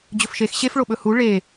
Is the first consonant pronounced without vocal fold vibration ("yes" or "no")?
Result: no